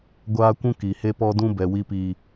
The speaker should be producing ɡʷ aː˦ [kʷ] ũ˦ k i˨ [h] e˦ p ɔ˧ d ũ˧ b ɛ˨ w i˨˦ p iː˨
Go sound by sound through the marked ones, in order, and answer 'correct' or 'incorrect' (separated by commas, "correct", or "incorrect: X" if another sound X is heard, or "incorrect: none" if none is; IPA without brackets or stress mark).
correct, correct